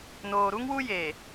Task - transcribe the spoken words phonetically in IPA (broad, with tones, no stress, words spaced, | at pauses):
noː˨ ɾu˦ŋwu˦ jeː˨